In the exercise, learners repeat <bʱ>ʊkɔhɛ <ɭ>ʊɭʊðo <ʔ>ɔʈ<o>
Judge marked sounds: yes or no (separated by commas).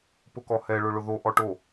no, yes, yes, yes